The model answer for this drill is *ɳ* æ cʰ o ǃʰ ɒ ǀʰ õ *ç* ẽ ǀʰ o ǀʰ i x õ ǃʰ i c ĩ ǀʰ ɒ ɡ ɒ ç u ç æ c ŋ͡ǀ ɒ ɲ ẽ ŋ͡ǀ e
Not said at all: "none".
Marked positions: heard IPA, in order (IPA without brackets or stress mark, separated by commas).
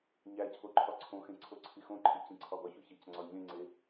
ɲ, x